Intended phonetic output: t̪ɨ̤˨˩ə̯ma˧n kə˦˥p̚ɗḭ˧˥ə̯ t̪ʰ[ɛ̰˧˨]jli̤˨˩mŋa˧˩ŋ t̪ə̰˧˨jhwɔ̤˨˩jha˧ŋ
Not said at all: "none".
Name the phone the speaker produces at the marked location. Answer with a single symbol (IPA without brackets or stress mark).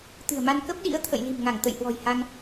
ə̰˧˨